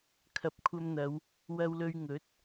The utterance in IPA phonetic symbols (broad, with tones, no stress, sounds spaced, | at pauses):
kʰ ɐ˨ p̚ kʷʰ ɐ˧ m n̪ ɐ˨˧ w | w ɐ˧ w l ɵ˧ ɥ ŋ ɵ˨˥ t̚